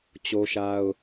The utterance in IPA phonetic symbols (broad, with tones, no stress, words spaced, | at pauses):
t͡ɕo˦ʃa˦ʊ̯